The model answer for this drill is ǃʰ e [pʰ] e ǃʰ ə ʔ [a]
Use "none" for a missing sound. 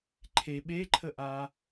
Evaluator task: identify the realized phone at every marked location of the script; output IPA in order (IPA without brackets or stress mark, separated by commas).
ɓ, a